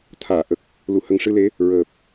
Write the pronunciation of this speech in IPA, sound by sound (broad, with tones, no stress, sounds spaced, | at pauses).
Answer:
t̪ʰ aː˨˩˨ ʔ ə˨˩ k̚ | l u˨˩˨ h ə˨˩ ŋ ʂ ɨ˧ l e˧˥ | ɹ əː˨˩ p̚